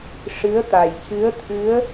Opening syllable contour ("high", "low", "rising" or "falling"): rising